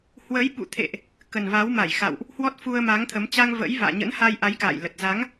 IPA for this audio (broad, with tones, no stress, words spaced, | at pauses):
hwə˨˦jɓṵ˧˨t̪ʰḛ˧˨ʔ | kə˨˩nva˨˦wma˧˩jxa̰˧˨wʔ | hwɔ˦˥t̚fu˧ə̯ma˨˦ŋ t̪ʰə˨˦m t͡ɕa˧ŋ və̰˧˥jva̰ː˧˨ ɲə̰˧˥nha˧jʔa˨˦jka̰ː˧˨j lə˨˩t̚za˨˦ŋ